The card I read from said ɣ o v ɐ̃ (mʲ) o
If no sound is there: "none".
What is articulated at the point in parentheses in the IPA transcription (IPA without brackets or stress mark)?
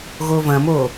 m